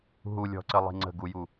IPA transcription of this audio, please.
ɦ u lʲ ɔ̤ ǀ ə lˠ i̤ ŋ͡ǀ ə̤ ɡ u j u

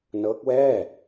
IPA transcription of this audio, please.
n ɤː˦˥ k̚ w ɛː˥˩

